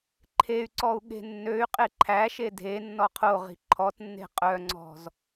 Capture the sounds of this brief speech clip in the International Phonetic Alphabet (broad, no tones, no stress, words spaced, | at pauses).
ǃʰey̯ǀɔu̯ ɠe̤nːøy̯qʼe ǃʰæʃe dʱenːɔ qʰoʁi̤ ǃʰɔtnːe̤ qʼœŋ͡ǀɔ̤z